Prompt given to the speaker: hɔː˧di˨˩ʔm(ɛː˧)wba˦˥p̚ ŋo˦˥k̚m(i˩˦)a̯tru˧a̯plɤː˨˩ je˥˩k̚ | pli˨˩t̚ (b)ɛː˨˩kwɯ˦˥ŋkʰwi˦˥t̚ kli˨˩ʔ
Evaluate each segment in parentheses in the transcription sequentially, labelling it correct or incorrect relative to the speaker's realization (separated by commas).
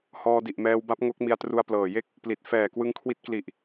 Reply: correct, incorrect, incorrect